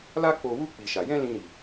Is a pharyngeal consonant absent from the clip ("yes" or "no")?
yes